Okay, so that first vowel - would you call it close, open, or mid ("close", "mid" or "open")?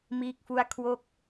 close